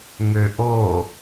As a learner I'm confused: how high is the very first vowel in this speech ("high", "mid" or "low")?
mid